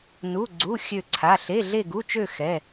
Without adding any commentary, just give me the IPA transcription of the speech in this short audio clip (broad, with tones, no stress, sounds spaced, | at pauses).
n u˧˥˧ ɡ͡ǀ u˧˥˧ xʲ ø˥˧ ǀʰ a˧˥˧ ɬ e˧˥˧ ɮ e˥˧ ɡ u˧˥˧ t͡ʃ ø˥˧ x ɛ˧˥˧